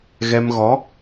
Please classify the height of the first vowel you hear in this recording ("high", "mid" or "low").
mid